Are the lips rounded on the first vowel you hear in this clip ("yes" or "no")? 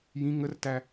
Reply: no